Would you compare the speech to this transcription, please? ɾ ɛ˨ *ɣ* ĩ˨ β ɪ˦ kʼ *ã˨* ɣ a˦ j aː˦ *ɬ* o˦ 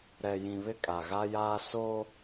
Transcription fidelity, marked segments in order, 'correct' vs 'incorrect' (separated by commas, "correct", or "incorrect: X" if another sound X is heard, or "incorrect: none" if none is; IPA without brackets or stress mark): incorrect: j, incorrect: a˨, incorrect: s